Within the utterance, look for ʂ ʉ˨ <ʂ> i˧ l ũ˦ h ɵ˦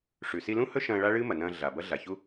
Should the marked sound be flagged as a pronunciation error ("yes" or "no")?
yes